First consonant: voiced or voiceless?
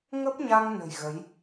voiced